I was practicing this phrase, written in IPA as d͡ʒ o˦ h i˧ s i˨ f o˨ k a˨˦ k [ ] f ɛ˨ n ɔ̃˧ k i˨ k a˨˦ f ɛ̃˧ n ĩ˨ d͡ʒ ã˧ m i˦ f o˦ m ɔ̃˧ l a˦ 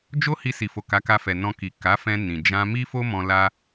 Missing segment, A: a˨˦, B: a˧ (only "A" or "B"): B